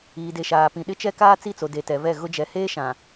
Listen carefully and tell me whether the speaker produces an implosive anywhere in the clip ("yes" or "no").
yes